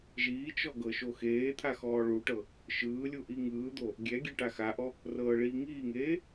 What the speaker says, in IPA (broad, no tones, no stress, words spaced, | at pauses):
ʒiːt͡ʃɔ ɡɤʃoxeːt̪ʰa xɔːɭuʈɤ | ʃɯːlʲu ʔiŋɯːd̪o | ɡʲɛɡʲe ʈaxaʔɔ | rɤːɭiːŋiːŋeː